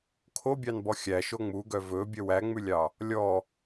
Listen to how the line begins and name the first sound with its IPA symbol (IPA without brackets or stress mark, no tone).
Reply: kʰ